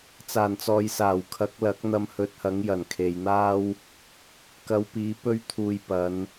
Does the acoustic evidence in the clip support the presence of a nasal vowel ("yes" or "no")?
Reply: no